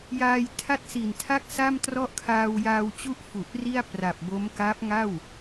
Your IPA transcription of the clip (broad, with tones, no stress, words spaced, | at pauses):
jaː˧jtʰa˥˩t̚ si˨˩ntʰa˥˩k̚ sa˥˩mtrɔ˥˩ʔ kʰaː˧wjaː˧wt͡ɕu˥˩ʔ fu˨˩ʔ ri˥˩a̯pra˨˩p̚bo˦˥m ka˦˥p̚ŋa˥˩w